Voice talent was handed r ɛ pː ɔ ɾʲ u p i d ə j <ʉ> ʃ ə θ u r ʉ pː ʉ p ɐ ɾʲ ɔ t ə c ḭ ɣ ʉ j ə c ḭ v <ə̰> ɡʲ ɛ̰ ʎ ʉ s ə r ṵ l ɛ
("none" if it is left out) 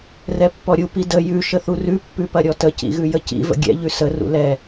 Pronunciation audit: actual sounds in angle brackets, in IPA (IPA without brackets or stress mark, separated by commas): ʉ, ə̰